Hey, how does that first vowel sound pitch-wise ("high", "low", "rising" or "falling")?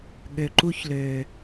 low